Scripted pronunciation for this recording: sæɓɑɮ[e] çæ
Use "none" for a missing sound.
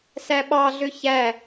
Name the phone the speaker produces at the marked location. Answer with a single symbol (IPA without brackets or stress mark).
ø